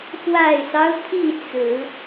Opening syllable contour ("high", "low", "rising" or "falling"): low